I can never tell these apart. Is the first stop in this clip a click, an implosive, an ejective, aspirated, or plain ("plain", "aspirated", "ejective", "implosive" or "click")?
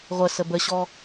plain